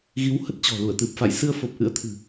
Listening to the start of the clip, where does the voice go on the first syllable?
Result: rising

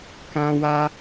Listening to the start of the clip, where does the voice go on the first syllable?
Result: high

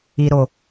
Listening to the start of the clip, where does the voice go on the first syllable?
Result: low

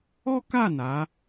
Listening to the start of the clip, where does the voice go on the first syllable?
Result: high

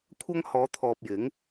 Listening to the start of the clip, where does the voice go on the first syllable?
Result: high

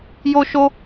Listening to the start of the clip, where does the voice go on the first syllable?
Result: high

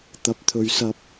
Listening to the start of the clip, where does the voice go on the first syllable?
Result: low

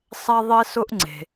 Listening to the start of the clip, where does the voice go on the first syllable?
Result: high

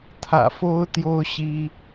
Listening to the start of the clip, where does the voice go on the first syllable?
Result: low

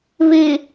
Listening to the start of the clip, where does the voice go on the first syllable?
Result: low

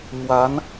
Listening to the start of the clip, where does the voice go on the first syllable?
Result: rising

